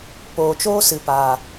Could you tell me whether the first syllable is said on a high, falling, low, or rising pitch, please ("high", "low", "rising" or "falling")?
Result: low